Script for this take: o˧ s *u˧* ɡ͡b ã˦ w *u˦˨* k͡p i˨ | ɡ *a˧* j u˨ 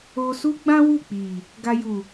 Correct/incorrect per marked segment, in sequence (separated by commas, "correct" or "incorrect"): incorrect, correct, correct